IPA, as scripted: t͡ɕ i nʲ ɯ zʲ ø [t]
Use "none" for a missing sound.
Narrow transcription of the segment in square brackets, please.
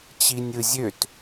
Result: t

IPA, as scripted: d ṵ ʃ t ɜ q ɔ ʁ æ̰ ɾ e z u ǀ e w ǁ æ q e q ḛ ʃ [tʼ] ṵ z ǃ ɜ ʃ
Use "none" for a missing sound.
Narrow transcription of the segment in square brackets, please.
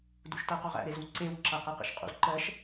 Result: qʼ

